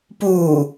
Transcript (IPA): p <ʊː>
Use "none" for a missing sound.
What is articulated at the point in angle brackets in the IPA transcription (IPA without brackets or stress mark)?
uː